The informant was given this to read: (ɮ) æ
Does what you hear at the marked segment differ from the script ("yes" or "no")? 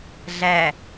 no